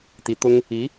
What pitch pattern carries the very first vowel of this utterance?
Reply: rising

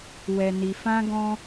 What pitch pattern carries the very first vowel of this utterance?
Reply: low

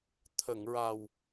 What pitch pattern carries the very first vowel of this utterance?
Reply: low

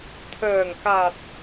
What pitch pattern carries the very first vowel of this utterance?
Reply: low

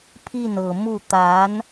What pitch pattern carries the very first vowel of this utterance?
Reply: falling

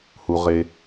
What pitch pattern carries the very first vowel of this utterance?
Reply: low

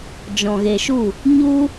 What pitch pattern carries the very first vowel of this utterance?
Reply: low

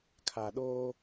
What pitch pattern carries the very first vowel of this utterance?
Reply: low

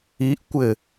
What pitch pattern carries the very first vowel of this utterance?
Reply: rising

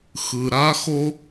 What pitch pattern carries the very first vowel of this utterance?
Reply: low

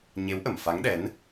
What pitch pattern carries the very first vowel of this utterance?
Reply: rising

